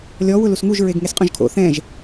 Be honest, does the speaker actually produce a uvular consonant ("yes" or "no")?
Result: yes